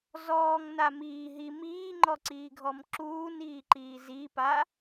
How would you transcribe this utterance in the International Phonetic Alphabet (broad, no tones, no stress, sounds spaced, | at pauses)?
z ɔː ŋ n a m iː ɦ i m iː ŋ͡ǃ ɔ ǀ iː ɡʱ ɔ m ǁ uː n iː ǃ iː z i p a